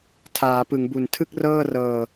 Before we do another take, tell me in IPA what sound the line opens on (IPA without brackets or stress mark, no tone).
tʰ